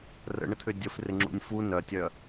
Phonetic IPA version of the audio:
rə̰ɳət̪ʰʏ dʲəfrɪŋ͡ǁṵnʲ fu nœtʲœ

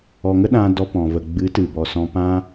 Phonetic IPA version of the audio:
ɔ˧ŋə˦ɗã˧ dɔ˧pɔ̃˨və˨ ɡ͡bɨ˨˦tɨ˨bɔ˨ sɔ̃˧pã˦

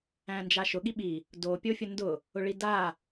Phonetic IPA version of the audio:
æ̃nd͡ʒaʃʊ ɠiɓi | do pʲofʲʊndʊ | ʊɭida

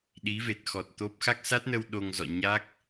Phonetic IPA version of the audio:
ɗi˨˦ve˨˩t̚xɔ˨˩t̚ t̪o˦˥p̚ xa˦˥k̚sa˦˥t̚nə˧w ɗo˧ŋzɔ̰˧˨ ɲa˦˥k̚

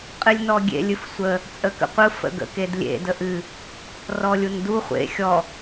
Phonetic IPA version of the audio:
qʼɨlʲnɔɡʲḛ lʲɨfsʷə | t͡sʼəkə̰qʷɯ fə̰ɡə̰kedlʲḛ dəʔɨ | rɔlʲundu χʷḛ xʲɔ

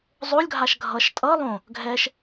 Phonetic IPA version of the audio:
zˤolʲɡʱaʃ ɡʱʌʃ tʼʌ lˠõ | ɡʱɛʃ

